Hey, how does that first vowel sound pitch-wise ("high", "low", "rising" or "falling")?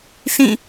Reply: falling